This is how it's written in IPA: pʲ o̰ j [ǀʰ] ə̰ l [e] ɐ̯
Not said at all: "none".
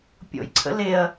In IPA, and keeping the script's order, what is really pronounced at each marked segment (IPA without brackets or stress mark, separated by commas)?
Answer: ǀʰ, e